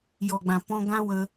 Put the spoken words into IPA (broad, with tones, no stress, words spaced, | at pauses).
jɔ˨ɡ͡bã˨pɔ̃˧ ɡã˦wə˧